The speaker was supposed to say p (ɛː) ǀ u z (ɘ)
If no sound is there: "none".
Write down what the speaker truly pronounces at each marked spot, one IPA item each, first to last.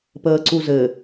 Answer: əː, ɘ

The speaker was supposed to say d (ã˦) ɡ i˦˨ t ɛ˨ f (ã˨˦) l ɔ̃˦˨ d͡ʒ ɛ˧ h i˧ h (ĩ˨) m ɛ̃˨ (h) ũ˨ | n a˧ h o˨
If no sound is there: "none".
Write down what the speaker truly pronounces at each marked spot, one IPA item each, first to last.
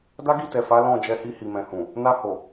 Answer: a˦, a˨˦, i˨, h

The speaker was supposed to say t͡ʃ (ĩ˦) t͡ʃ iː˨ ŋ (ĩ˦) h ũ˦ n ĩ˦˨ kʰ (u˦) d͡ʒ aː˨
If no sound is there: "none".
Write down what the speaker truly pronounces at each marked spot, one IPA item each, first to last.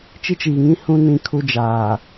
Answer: i˦, ĩ˦, u˦

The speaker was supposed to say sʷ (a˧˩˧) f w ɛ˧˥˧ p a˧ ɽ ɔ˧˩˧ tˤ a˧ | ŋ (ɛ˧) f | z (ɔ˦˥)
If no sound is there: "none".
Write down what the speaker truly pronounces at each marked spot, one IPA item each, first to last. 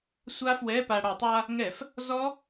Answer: a˦˥, ɛ˧˩˧, ɔ˦˥

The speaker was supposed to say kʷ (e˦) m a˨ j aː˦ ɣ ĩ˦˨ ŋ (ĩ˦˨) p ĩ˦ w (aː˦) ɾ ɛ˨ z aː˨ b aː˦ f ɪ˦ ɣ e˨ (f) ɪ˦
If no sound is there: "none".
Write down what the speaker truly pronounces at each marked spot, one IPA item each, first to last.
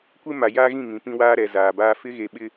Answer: e˦, ĩ˨, aː˦, ɓ

